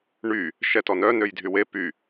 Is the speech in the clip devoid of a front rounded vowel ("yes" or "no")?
no